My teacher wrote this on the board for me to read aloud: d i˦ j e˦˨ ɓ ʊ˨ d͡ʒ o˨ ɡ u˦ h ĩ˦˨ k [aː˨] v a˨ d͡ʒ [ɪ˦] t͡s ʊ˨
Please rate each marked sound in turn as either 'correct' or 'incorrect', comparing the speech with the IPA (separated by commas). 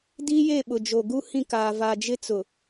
correct, correct